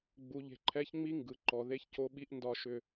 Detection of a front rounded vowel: present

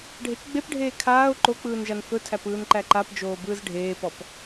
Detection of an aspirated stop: present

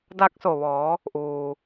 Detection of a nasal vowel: absent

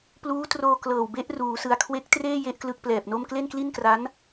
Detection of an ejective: absent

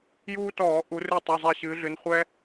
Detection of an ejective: absent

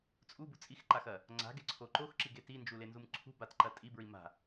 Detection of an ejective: present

